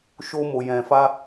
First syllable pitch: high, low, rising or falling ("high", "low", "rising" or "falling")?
high